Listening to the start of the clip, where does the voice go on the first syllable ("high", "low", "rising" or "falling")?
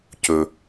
low